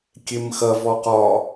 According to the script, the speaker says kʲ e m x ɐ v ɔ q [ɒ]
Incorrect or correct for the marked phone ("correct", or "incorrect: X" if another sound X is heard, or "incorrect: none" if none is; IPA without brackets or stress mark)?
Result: correct